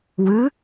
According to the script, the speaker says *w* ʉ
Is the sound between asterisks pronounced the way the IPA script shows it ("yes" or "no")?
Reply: yes